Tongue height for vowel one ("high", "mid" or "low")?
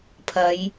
low